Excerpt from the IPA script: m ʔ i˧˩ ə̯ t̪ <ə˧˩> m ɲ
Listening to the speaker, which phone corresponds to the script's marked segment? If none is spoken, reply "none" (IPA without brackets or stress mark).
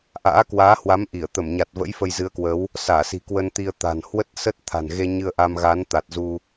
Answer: ə˧˩